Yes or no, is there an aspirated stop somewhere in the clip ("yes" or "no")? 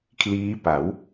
yes